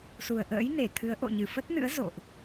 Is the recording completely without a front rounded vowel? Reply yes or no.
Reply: yes